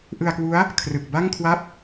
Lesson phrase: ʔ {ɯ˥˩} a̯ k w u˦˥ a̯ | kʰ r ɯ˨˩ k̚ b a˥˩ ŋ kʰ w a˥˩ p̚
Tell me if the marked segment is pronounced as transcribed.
no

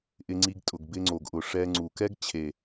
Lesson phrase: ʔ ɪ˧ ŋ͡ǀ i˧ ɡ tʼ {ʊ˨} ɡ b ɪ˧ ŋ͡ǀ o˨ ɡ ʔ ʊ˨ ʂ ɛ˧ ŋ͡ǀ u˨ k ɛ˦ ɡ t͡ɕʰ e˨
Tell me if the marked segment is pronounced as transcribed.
yes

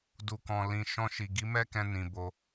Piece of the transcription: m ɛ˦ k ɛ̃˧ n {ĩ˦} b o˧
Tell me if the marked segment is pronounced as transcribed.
no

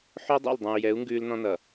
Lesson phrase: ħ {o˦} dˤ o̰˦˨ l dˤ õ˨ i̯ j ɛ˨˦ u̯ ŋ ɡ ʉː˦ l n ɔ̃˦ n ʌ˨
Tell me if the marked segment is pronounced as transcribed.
yes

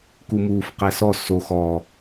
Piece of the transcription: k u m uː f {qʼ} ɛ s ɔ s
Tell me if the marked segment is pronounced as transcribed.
no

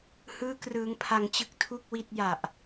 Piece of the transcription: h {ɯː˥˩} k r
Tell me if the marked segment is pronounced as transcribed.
yes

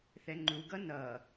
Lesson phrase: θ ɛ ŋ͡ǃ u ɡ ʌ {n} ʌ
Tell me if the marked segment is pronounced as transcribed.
yes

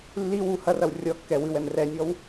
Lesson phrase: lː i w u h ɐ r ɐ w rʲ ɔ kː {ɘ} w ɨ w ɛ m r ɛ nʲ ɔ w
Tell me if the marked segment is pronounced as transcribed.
no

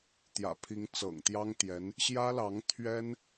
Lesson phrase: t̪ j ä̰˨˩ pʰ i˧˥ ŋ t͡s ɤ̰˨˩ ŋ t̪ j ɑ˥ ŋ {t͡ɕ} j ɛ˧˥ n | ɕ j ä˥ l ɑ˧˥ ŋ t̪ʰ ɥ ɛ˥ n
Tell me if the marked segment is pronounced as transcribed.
no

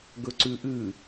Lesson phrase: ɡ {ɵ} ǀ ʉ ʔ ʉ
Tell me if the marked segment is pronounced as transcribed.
yes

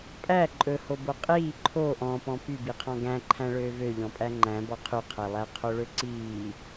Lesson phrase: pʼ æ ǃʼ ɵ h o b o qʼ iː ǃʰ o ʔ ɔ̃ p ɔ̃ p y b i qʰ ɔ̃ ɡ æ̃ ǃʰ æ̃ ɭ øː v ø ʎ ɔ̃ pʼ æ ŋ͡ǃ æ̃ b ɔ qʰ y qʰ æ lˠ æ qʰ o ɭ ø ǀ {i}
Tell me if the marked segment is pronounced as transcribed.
no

